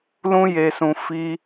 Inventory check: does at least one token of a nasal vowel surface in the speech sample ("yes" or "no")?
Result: yes